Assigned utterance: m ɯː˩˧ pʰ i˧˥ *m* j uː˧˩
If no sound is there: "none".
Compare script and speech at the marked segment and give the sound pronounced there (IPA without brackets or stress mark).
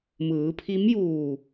m